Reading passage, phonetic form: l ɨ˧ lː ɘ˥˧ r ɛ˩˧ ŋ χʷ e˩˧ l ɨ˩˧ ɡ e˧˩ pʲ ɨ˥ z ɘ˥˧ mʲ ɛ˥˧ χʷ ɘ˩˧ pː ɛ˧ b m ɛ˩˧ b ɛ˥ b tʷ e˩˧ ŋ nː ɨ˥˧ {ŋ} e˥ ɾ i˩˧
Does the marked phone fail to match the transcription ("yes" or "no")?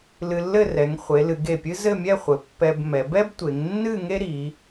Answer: no